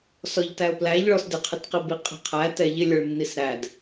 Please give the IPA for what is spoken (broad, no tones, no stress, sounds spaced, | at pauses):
s ɔ ʎ t æ ʊ̯ p l æ ʎ ɭ ɔ s d ɪ qʰ ɪ t q i b i qʼ ɛ̤ qʰ æ t ɛ ʎ ɪ lʲ ə˞ ɭ nː i s ɾ æ d